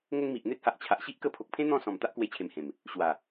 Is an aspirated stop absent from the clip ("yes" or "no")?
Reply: no